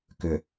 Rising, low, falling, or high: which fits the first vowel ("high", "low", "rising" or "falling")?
low